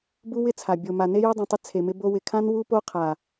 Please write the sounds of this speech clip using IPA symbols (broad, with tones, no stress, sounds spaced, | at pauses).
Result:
b u˦ w ɪ˦ t͡sʰ a˨ bʲ o˨ m a˨ n e˦ j o˦ dˤ ũ˨ tˤ ɪ˦ t͡sʰ e˨ m ɪ˦ b o˦ w ɪ˨ kʰ ã˦ n w u˦ p o˦ qʰ a˨